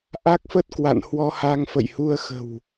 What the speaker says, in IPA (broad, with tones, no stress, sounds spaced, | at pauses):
ʔ a˦˥ k̚ f ə˦˥ t̚ k w a̰˧˨ n h w ɔ˧ h aː˧ ŋ f ə̰˧˨ j h u˧ ə̯ x ə̤˨˩ w